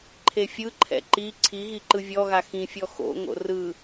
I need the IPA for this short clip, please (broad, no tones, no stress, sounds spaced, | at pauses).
ǃʰ e fʲ ɯ ǃʰ ɛ̰ ǃ i ǀʰ i ɣ i ǃ ɯ vʲ ɔ ɣ a x ĩ fʲ ɔ x o̰ ŋ o̰ r ɯ